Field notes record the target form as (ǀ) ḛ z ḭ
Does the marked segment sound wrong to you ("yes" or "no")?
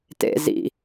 yes